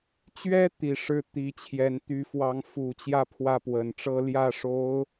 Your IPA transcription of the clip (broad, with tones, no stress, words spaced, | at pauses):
t͡ɕɥɛ˥ t̪i˨˩ ʂɻ̩˥ t̪i˧˥t͡ɕʰjɛ˧˥n t̪y˧˥fwɑ˧˥ŋfu˨˩t͡ɕjä˥˧ pʰwä˥˩pwə˨˩nʈ͡ʂɤ˥ ljä˥˩ʂo˧˥ʊ̯